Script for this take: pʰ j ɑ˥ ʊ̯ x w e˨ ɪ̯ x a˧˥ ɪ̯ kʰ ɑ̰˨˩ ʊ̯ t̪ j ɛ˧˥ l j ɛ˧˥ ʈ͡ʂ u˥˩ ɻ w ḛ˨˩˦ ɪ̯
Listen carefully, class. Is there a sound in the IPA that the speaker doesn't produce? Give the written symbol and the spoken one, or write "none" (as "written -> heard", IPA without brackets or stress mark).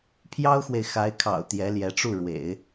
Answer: none